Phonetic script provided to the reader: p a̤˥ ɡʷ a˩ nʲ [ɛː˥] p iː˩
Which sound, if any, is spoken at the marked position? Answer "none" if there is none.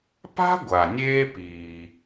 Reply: eː˥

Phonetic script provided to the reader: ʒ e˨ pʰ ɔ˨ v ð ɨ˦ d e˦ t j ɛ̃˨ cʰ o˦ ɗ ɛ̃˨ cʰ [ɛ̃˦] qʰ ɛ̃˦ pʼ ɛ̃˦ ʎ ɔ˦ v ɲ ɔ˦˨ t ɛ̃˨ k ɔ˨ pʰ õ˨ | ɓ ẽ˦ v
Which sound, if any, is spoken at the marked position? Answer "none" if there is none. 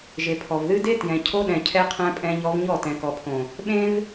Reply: ɛ˦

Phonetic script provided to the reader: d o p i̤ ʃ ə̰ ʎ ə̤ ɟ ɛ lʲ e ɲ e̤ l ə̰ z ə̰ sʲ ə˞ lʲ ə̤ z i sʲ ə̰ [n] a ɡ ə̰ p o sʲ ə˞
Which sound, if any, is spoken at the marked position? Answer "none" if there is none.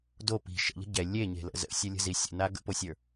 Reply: n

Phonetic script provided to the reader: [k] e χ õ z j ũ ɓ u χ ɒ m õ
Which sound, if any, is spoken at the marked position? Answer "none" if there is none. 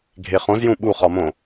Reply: ɡʱ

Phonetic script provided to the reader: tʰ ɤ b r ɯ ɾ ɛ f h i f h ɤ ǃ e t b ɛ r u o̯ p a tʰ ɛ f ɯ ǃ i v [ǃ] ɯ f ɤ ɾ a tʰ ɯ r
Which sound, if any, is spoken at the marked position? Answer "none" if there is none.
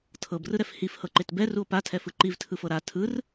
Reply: tʰ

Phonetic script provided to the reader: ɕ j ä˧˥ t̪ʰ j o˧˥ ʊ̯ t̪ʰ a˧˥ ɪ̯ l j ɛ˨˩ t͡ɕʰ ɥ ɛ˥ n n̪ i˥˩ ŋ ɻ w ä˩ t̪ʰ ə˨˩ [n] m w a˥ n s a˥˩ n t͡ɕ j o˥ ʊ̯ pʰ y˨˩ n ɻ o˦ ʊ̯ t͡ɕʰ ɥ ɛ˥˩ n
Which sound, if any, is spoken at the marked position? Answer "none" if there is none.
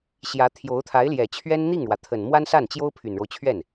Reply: n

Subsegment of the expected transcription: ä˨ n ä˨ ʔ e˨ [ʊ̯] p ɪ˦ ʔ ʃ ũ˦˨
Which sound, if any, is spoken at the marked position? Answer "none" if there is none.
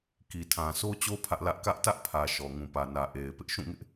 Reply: ɪ̯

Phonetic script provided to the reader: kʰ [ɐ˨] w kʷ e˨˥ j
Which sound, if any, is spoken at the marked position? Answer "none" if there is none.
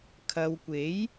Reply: ɐ˨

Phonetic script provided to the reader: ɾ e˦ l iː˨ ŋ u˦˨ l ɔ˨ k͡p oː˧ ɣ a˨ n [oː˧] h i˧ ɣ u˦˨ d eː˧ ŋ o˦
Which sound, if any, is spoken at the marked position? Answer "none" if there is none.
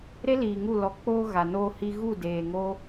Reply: oː˧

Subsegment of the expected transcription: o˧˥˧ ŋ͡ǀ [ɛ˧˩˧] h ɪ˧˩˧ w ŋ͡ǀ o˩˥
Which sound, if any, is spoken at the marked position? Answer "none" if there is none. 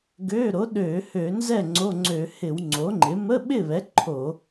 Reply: ø˧˩˧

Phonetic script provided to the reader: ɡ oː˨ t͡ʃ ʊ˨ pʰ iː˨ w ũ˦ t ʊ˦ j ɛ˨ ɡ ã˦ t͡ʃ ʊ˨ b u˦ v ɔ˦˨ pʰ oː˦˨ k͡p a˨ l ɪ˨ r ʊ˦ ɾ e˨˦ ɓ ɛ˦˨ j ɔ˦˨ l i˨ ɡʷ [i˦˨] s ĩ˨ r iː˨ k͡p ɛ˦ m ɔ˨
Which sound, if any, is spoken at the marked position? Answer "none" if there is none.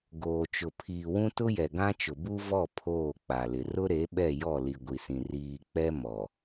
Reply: i˨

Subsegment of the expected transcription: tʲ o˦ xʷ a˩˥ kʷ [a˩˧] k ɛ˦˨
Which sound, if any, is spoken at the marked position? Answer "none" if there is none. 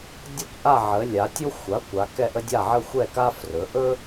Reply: a˩˧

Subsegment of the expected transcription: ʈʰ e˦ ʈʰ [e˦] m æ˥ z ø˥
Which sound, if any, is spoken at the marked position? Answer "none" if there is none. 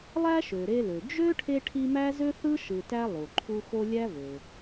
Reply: i˦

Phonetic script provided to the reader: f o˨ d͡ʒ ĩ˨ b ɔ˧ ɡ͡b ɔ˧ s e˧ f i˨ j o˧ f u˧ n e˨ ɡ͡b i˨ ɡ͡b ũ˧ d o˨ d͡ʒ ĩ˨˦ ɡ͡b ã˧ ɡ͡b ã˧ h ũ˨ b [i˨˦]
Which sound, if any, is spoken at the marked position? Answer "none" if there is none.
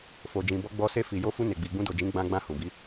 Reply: i˨˦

